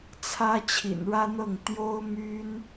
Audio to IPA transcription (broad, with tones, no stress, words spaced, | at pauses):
t͡sʰä˥ t͡ɕʰḭ˨˩nɻä˥n̪ɤ˥˩ŋ t̪jo˥ʊ̯my˥n